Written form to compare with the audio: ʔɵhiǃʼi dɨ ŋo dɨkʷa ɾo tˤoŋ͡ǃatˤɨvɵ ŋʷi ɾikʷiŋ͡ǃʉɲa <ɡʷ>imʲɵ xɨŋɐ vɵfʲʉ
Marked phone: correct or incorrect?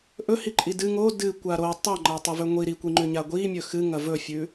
correct